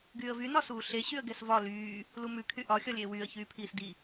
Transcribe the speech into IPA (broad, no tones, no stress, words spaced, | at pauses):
ɡyːə̯vy nɒsuːɬe ɕyə̯ɡɛsvɒ lyː | lumʉ kʰyʔɒ xʲɒlʲeːwyːə̯ çyːpʰiːsdi